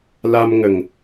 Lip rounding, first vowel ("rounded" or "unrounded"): unrounded